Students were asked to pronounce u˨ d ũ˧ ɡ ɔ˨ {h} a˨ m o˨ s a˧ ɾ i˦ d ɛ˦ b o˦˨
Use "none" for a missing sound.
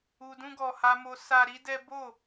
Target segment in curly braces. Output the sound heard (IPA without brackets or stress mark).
h